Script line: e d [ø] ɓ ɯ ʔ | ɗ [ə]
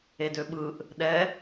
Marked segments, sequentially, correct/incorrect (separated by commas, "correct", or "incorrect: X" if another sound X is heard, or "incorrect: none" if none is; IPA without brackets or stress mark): correct, incorrect: ɛ